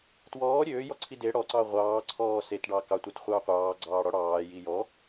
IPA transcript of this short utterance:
twɔː ɾʲøːjɔǀʰi de ɽɔǀɑ ʁʷɑːǀʰɔː setɖɑ kɑtʷætχʷɑː qʷɑːɡ͡ǀɑːɽɔ ɽɑːji jɔ

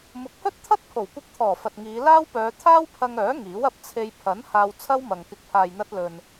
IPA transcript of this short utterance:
mʊ˨˥k̚hɵ˥t̚ t̪ʰɐ˥t̚pʰo˨˩wkʷɪ˧k̚t̪ʰɔː˨˩ fɐ˨t̚ŋiː˨˧ laː˥wpœː˨˧ t̪ʰaː˥wpʰɐ˧ŋœː˨˥ ŋiː˨˥wɐ˧p̚ t͡sʰe˧j pʰɐ˨˥n haː˧wt͡sʰɐ˥wmɐ˨ŋ kɪ˨˥k̚pʰaː˨jn̪ɐ˧t̚lɵ˨n

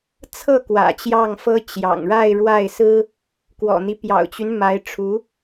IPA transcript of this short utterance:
t͡sʰɤ˥˩kwä̰˨˩ t͡ɕjɑ˥˩ŋfɤ˥ t͡ɕjɑ̰˨˩ŋɻa˥˧ɪ̯ɻwa˥˩ɪ̯sɹ̩˥ | kwɔ̰˨˩n̪i˦ pjɑ̰˨˩ʊ̯t͡ɕy˦n ma˧˥ɪ̯ ʈ͡ʂʰu˧˥

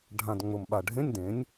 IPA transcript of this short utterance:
ɖʱã˨˩d ŋ͡mʊ˨˩mɓa˨˩ ɖʱẽ˧˥˧nʲ dẽ˩˥nʲ

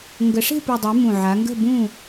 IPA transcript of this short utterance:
ŋɡə˩˧ʂe̤˥˨pu˨˩dˤɛ˩˧ mũ˨˩ʕa˩˧ŋɡə̤˥˨bũ˥˨

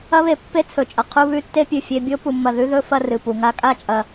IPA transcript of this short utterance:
ɐ˦βe˨pːe˦ t͡sʰɵ˩t͡ʃʼɐ˩ qʰu˦βʉ˦tːe˥ pʲʉ˩fʲe˦ bʲo˥pu˨mːɐ˨ ðʉ˥ðɵ˥ fɐ˦rɨ˩pu˩ ŋa˦kʼa˥t͡ʃʼɐ˨

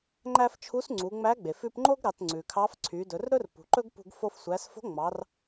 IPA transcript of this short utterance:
ŋ͡ǃæ˧f t͡ʃʰu˧˥sŋ͡ǀu˩˧ŋ͡mæ˧˥ ɡ͡be˩fʉ˧pŋ͡ǃo˥ɡ ɾɑ˩˧tŋ͡ǀʉ˩kʰɑ˧˥f ǀʰy˩˧dɵ˩˧rɾɵ˥r pṳ˩ǃɵ˥ɡpṳ˧ɡfo˧f sʷæ˩˧sfo̤˧˥ ŋ͡mɑ˩˧r

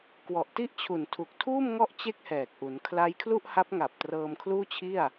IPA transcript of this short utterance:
kwɔ˨˩ʔti˥˩ʔt͡ɕʰu˨˩n tʰu˨˩k̚tʰuː˥˩m ŋɔ˥˩ʔt͡ɕe˥˩k̚hɛː˨˩k̚ʔu˩˦n kʰla˦˥jkʰlu˥˩ʔha˦˥p̚ ŋa˨˩p̚ trɤː˧mkʰluː˥˩t͡ɕʰi˥˩a̯

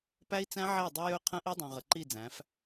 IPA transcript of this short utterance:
pæ˦i̯t͡sæ̃˦ ʕæ˦˨dˤɵ˦ jɵ˦qʰə̃˦ ʔi˦dˤũ˨ʁə˨ ǃi˦˨d͡zæ̃˨˦f

